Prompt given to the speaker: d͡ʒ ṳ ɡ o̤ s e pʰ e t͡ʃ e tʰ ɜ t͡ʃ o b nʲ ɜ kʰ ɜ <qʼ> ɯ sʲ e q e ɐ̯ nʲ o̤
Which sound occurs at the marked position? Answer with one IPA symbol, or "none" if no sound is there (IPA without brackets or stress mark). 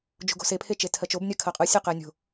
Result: qʼ